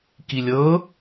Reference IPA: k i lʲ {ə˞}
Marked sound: incorrect: ɤ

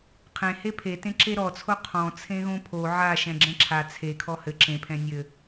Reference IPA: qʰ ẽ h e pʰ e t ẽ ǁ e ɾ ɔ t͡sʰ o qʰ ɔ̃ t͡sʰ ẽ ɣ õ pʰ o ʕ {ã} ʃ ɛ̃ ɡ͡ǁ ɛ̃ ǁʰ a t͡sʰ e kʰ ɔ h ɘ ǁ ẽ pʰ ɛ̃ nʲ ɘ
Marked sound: incorrect: a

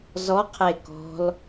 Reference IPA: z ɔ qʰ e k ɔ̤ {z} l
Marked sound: incorrect: none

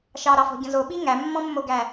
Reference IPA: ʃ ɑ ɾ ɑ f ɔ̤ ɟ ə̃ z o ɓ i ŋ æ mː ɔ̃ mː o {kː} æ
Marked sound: incorrect: ɡ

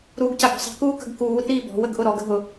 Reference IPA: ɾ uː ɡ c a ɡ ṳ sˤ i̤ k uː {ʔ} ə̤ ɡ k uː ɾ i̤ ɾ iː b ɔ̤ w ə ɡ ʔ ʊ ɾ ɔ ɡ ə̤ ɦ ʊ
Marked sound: incorrect: k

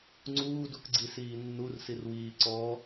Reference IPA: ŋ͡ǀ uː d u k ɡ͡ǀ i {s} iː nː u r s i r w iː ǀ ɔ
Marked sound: correct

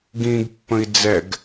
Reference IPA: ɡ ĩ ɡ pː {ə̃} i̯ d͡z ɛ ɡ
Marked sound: correct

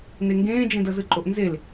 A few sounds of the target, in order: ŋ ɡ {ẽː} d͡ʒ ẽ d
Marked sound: correct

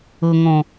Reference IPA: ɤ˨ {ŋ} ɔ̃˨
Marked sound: correct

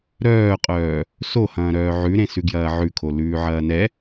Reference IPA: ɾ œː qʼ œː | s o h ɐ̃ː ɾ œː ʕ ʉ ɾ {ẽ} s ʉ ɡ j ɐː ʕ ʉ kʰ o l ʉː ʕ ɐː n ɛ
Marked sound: correct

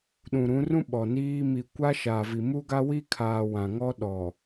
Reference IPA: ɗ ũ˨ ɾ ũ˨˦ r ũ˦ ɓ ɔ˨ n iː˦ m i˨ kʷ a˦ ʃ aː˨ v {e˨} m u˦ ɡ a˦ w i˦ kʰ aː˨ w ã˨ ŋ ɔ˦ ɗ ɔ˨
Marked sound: incorrect: i˨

